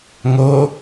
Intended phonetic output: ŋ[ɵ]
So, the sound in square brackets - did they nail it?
no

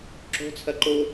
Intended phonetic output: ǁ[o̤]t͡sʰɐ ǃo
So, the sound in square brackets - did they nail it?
yes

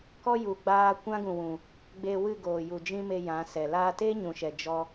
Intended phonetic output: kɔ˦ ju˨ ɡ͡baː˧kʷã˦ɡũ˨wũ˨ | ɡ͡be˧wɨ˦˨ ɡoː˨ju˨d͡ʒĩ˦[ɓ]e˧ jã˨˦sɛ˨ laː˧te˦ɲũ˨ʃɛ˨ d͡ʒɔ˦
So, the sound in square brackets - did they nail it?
no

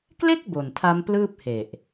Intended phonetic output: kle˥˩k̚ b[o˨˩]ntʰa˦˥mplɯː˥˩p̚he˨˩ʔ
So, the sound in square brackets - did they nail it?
yes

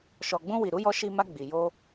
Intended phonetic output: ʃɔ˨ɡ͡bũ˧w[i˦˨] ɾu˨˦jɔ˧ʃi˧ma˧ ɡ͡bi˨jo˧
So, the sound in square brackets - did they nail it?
no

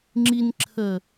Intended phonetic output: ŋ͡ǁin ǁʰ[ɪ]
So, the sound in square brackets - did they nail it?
no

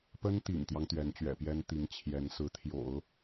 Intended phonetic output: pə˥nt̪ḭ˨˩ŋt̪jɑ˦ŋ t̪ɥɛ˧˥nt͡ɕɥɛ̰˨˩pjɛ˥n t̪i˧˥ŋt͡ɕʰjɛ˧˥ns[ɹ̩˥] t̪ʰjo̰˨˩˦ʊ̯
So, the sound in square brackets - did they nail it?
no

